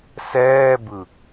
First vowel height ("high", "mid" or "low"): mid